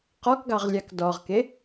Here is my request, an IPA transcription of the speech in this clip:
q ɔ k ɡ ɑ ʁ lʲ ɑ k d ɔ ʁ k e

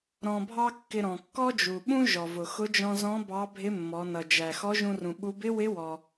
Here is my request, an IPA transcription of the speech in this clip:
ɾ ɔ̃˧ bʱ ɑ˥ kː ɪ˧ ɾ ɔ̃˩ kː ɔ˥ d͡ʒ u˩ ɓ ũ˥ ʒ ɔ˩ v ʊ˩ x ʊ˧˥ d͡ʒ ɔ̃˧ z ɔ̃˧˥ b ɑ˧˥ bʱ ɪ˧˥ mː ɔ˩˧ n ʌ˩ d͡ʒ æ˩ x ɔ˧˥ ʒ ũ˧ r ũ˩ ɓ u˧˥ b ɪ˥ w ɪ˧˥ w ɔ˩

